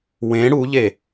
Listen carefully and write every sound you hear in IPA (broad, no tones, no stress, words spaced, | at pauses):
wẽ ɽuʎe